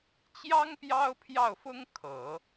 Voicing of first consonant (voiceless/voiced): voiceless